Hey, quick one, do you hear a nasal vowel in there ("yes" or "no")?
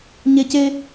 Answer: no